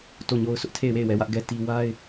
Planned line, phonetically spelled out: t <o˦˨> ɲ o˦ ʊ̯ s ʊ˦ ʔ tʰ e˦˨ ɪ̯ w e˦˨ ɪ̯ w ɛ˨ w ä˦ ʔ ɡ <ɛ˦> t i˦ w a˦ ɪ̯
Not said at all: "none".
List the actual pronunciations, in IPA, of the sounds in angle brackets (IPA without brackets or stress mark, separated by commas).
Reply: o˦˨, ɛ˦